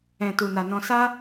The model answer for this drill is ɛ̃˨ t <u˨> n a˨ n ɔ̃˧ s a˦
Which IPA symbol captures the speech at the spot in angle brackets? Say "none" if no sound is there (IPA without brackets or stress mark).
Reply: u˨